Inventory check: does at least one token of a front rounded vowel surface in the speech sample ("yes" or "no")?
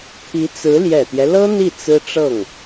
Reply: no